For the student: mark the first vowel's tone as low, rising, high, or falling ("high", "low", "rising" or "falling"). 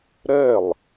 falling